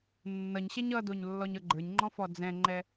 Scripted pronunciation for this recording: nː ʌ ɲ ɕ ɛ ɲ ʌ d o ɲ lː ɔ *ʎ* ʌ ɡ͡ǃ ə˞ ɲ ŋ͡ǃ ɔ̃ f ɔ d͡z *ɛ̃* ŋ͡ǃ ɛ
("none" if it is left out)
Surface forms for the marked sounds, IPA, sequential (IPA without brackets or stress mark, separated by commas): ɲ, ɛ̃